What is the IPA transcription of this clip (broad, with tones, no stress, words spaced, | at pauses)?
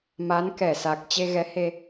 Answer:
ma˨˦nkɛ˧˩sa˨˩k̚ t͡ɕe˧ɣɛ˨˦he˧